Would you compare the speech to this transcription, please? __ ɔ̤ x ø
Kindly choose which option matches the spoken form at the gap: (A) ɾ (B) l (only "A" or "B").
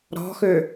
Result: A